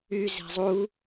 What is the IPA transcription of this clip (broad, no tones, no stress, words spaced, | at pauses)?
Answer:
y zi̤zˤu